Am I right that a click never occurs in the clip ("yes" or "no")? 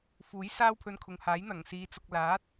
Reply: yes